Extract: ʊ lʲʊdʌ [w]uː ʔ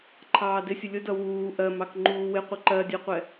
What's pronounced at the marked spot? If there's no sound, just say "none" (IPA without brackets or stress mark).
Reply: w